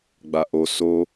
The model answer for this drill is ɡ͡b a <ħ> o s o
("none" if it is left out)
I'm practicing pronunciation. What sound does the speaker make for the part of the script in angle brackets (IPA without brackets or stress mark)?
ʔ